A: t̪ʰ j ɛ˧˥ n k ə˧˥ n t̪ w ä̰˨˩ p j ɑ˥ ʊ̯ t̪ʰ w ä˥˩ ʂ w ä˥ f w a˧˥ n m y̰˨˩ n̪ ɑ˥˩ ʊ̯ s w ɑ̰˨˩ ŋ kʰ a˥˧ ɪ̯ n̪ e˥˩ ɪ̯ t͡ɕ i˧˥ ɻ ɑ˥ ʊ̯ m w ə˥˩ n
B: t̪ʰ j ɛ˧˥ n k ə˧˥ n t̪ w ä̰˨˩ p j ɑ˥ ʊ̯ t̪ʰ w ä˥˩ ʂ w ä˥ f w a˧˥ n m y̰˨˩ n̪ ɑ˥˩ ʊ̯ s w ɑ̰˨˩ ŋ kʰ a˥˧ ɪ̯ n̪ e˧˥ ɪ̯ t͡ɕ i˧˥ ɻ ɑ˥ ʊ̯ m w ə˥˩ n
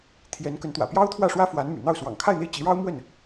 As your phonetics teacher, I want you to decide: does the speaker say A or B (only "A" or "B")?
A